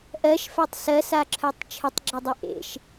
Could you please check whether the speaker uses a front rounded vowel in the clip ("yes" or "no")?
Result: yes